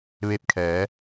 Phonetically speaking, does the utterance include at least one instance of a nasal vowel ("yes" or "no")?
no